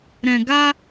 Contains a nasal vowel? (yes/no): yes